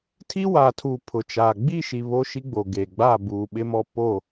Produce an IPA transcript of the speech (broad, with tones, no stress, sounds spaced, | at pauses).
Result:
tʰ i˦ w a˨ tʰ uː˨ pʰ ʊ˨ t͡ʃ aː˨ ɡ͡b i˦˨ ʃ i˨ β o˦ ʃ i˦ ɡ͡b o˨ ɡ e˨ ɡ͡b a˦˨ b uː˨ ɓ ɪ˦ m ɔ˦ p o˦˨